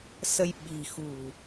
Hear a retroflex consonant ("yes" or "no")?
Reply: no